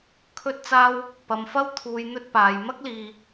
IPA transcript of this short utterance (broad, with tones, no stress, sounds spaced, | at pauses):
kʰ ɵ˥ t̚ t͡s aː˥ w | p ɐ˨ m f ɐ˥ w t̪ʰ uː˨ j n̪ ɵ˥ t̚ p aː˨ j m ɐ˥ k̚ l iː˨